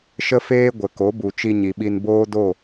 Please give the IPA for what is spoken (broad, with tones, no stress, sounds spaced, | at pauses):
ʃ ə˦ f eː˦ ɡʷ ə˨ k o˨˦ b u˨ t͡ʃ i˧ ɲ i˨ ɓ i˧ n b oː˦ d o˦˨